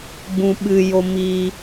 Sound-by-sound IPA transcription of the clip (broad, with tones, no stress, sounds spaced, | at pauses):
ɡ͡b ũ˦ ɓ ɨ˦ j o˦ m i˦